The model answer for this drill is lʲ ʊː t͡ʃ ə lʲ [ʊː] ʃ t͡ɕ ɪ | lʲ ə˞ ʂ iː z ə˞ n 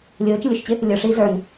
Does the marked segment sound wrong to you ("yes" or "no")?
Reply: yes